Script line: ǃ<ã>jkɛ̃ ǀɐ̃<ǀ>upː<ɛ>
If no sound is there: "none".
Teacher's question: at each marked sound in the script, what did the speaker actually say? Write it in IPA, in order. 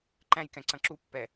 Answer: æ̃, ǁ, ɛ

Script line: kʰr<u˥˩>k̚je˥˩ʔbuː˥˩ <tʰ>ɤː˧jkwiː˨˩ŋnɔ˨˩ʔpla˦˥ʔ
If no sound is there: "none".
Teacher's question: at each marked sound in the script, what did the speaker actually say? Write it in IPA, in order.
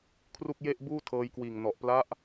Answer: u˥˩, tʰ

